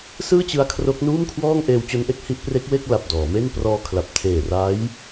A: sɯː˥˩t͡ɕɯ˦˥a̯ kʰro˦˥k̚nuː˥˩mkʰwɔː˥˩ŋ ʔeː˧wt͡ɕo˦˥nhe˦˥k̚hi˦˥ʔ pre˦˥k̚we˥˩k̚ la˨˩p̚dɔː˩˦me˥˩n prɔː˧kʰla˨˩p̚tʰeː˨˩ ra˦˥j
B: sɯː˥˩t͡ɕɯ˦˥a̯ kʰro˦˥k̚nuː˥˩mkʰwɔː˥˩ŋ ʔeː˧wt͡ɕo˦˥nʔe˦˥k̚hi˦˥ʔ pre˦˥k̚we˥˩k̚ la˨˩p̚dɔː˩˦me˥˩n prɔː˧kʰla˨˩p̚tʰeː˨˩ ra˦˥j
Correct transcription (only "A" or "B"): B